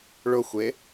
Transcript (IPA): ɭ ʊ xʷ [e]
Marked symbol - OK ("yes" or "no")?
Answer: yes